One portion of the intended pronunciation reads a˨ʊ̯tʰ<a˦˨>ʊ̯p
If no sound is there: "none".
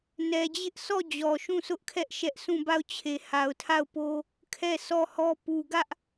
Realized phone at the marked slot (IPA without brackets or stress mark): a˦˨